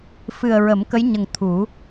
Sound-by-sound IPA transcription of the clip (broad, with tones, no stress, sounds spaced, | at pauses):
f ɨ˨˩ ə̯ ɹ ə˨˩˦ m k ə˧˥ j ɲ ə˨˩ ŋ t̪ʰ u˨˩˦